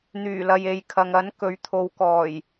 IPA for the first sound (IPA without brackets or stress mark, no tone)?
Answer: n̪